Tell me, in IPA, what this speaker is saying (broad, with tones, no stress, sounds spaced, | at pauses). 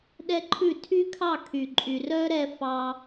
ɗ ɛ˦ ǃʰ ʉ˦˨ tʰ y˦ kʰ ɑ˦˨ kʰ y˨ ǃʼ y˨ r œ˦ ɾ ɛ˧ f ɑ˧